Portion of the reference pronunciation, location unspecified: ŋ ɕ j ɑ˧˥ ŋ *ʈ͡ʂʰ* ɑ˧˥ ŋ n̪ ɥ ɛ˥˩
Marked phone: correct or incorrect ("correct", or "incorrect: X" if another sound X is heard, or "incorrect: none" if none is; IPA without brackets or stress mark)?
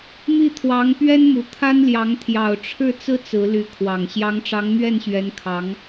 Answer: incorrect: ʈ͡ʂ